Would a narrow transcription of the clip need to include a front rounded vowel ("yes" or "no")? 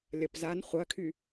yes